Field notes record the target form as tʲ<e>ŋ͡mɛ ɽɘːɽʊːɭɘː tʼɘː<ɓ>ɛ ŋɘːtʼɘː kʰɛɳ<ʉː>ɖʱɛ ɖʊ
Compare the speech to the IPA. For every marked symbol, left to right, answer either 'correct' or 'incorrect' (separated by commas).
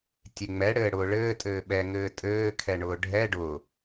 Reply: correct, correct, incorrect